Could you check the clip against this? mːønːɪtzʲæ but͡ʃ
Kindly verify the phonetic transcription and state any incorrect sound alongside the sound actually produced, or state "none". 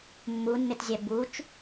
ø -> u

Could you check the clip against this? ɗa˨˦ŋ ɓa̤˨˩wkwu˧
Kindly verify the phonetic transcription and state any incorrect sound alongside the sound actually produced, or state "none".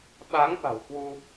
ɗ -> ɓ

